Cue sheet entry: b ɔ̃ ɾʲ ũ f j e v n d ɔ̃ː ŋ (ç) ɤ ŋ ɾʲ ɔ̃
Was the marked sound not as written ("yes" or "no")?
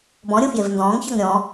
no